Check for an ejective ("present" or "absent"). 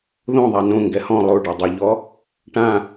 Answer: absent